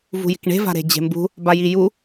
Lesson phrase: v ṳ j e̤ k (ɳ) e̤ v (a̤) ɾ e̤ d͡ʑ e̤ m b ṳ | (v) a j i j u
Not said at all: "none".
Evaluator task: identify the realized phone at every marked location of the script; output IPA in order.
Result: ɳ, a̤, b

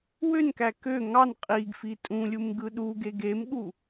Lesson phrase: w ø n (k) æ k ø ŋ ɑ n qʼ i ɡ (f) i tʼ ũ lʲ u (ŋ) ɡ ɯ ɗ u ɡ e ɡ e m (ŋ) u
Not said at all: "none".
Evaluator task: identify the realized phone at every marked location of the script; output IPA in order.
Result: k, f, m, ɠ

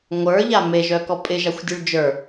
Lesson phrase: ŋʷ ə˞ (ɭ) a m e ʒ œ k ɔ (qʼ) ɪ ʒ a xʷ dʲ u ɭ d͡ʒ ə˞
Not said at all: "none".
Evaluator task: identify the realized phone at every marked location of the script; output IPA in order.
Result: ʎ, pʼ

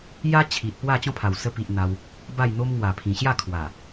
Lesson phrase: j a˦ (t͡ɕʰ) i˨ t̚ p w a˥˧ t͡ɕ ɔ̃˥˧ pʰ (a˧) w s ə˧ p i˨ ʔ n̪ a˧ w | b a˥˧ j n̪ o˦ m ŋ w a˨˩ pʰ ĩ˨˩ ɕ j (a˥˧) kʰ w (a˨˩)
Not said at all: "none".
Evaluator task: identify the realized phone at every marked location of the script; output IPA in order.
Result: t͡ɕʰ, a˨˩, a˥˧, a˨˩

